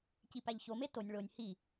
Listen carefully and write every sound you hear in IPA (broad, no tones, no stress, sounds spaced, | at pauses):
c i p æ ʎ ç o m e t o nʲ ɭ o nʲ h i